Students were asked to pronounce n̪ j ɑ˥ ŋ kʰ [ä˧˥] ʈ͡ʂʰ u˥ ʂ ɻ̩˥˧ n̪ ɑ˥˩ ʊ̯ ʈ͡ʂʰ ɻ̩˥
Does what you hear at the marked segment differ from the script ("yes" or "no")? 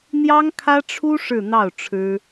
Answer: yes